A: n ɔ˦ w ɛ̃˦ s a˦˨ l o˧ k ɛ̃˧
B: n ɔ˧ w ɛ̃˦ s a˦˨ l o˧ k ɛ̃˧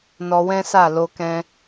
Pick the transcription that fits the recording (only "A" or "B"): B